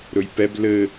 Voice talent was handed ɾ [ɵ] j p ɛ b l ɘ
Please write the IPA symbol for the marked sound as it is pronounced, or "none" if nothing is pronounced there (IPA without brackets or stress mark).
ɵ